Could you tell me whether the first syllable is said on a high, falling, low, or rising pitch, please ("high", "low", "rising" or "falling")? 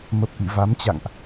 low